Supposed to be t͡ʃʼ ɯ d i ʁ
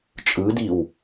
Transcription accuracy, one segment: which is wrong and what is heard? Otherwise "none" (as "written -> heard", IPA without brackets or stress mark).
ʁ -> w